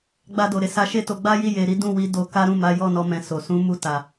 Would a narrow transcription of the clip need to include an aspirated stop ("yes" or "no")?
no